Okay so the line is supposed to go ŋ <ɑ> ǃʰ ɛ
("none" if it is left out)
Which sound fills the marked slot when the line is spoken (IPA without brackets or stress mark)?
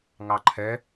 ɑ